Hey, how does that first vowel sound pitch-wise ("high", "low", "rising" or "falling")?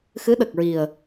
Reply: rising